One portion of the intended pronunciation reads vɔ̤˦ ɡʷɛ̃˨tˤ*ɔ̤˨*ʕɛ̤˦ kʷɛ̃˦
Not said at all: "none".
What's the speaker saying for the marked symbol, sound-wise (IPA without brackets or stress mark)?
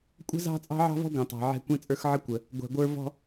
ɑ̤˨